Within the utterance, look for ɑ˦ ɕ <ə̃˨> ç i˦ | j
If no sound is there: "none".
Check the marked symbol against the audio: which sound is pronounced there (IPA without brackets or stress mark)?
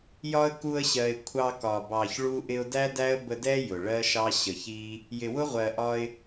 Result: ə˨